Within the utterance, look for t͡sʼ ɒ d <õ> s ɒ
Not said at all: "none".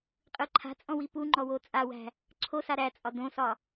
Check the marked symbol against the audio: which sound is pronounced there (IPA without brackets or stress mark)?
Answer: õ